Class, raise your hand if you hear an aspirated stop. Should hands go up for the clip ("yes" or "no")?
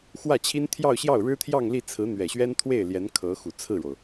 yes